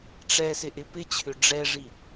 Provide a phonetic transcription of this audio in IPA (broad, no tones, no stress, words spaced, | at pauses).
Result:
ʈ͡ʂɛ sɪʔɪpɪt͡ɕʰʏ ɖ͡ʐɛʐi